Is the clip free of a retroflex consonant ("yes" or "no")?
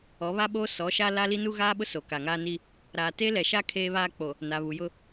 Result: yes